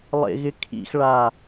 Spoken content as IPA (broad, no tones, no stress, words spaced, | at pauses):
lˠḛɣɪkʰḭxɭa